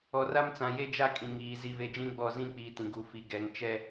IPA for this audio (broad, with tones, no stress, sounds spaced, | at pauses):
ɔ˨ r a˦ m t͡s ã˨ j e˦ d͡ʒ a˦ kʼ ĩ˨ ŋ iː˨ z i˨ v e˨ d͡ʒ ĩ˦ ɡ͡b ɔ˦˨ z ĩ˦ k͡p iː˨ t ĩ˨ ɡ u˨ f i˨ ɡ ɛ˨ ŋ t͡ʃ ɛ˦